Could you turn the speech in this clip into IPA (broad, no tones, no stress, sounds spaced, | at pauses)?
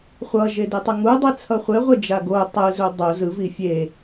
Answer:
χʷ ʌ ʒ e d e tˤ ɛ ŋ u dˤ ɛ t͡sʰ ʌ χʷ e ʁʷ e d͡ʒ a ɡ o tˤ ɯ z u dˤ o z ɯ v i fʲ e